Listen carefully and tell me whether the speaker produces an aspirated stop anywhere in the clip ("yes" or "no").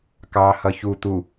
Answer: no